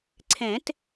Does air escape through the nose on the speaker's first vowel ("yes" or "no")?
yes